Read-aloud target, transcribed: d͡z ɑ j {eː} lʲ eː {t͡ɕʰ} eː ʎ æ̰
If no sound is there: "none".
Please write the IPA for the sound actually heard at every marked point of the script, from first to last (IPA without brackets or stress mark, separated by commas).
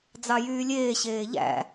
yː, ɕ